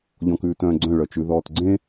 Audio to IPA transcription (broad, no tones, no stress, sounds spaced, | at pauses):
ʎ ɔ̃ k ʉː t œ̃ː ɡ͡ǀ œ̃ ɭ œ t͡ʃ ʉ ð ɔː t ɡ͡ǀ ẽ